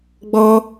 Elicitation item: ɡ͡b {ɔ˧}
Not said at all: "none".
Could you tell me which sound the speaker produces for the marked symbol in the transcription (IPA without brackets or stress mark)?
ɔ˧